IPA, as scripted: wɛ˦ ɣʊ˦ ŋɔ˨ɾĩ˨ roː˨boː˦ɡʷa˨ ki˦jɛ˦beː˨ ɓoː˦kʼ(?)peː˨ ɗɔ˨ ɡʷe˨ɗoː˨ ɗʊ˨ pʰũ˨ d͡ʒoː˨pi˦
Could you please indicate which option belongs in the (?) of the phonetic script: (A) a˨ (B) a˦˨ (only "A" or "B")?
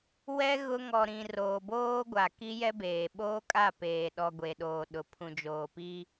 B